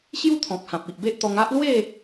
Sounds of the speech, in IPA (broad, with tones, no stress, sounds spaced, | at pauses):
ɕ j u˦ t̪ʰ ɔ̃˨ k̚ h ã˨ p̚ i˨ ʔ b e˦ ʔ t̪ ɔ˧ ŋ a˦ ʔ l w e˥˧